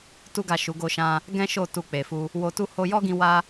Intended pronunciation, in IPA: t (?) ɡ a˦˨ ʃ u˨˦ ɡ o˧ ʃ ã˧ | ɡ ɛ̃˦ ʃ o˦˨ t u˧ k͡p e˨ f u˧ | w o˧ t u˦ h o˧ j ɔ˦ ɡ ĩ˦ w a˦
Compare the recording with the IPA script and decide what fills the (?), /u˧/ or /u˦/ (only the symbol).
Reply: u˦